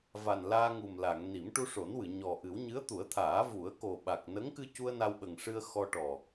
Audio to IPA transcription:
v a˨˩ n l aː˧ ŋ u˨˩ m l a˨˩˨ ŋ n i˨˩˦ m ʈ u˧ ʂ o˨˩˦ n w ɨ˨˩˨ ɲ ɔ˨˩ ʔ ɨ˨˩˦ w ɲ ɨ˧˥ ə̯ t̪ u˨˩˦ ə̯ t̪ʰ aː˨˩˦ v u˨˩˦ ə̯ k o˨˩ ɓ a˨˩ k̚ n ə˧˥ ŋ k ɨ˧ c u˧ ə̯ n a˧ w ɓ ə˨˩ ŋ ʂ ɨ˧ ə̯ x ɔ˧ ʈ ɔ˨˩

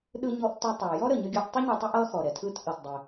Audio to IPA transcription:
ɗ ɯ˧ ɲ ɔ˧ ʔ t ʊ˧ tˤ ɛ˩ j ɔ˥ ɾ ə˩ ɲ ə˧ ɡʲ ʌ˧ ʔ tˤ ʊ˥ ɲ ʌ˧ tˤ ɯ˧ ʔ ʌ˧ x ɔ˩ ɾ ɛ˩ tʰ ɯ˧ t ʔ ʌ˩ t dˤ ɛ˩

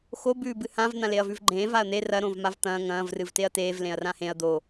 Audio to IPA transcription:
x o b ʉː b ɨ h ã v n̪ ã l e ɐ̯ v ʉ v ɡ͡ǃ ẽː v a ɐ̯ n̪ e r ɐ ɾ õ v m a v t̪ ɐ̃ː ŋ ɐ̃ː v r ɨ v t e ɐ̯ t eː v l ẽ ɐ̯ r ã h ẽ ɐ̯ d̪ o

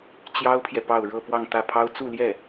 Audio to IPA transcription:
t͡ɕ j ɑ˥ ʊ̯ pʰ j ɛ˨ p ɑ˥˧ ʊ̯ ɻ ɤ˥˧ p w ɑ˥˧ ŋ t̪ ä˥˩ pʰ ɑ˥ ʊ̯ t͡s u˥˧ l j ɛ˥˩

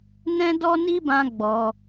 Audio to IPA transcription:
n ɛ̃˧ d ɔ˧ n i˧ b ã˦ ɡ͡b ɔ˧

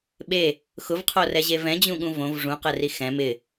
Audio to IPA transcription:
ɓ e | x ʊ v qʰ o r ɛ ʑ e v ɛ̃ d͡ʑ ũ ɠ ũ v õ v ʐ ũ q ɛ r i x ɛ̃ m ɪ

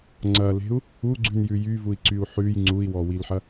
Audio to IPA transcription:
ŋ͡ǀ ɐ l e̤ u̯ | u ɡ͡ǀ ʉ n j ʉ j y v u i̯ ǀ y u̯ ħ ʉ j ŋ͡ǀ u i̯ w ɔ w i l ħ ɐ

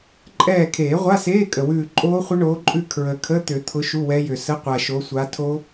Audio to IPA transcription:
ǃʼ ɛː˦˨ kʰ eː˨˩˦ ʁʷ a˧˥˧ s eː˧˥˧ kʼ ə˨˩ w ʉː˦˨ ǃʼ oː˦˥ χʷ ə˦˥ ɳ oː˨˦ ǃʼ ʉ˦˨ kʰ ɹ ə˨˩ kʰ ə˧˥˧ t̪ ʏ˨˩˦ t̪ʰ ʊ˨˦ ʃ u˧˥˧ w ɛ˦˥ j ʏ˨˩ s ə˧˥˧ qʷ a˨˩ ʃ o˨˦ sʷ a˨˦ tʰ o˦˥

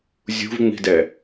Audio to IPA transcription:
zʲ ṳ v ŋ͡m i̤ d ɛ

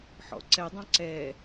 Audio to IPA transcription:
ħ ɔ̰ ǀ ɛ dˤ ɑ̃ ǀ ɛ

